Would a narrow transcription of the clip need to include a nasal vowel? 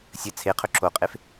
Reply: no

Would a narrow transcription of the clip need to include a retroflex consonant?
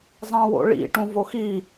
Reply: yes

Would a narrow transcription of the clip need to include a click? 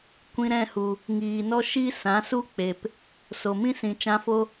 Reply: no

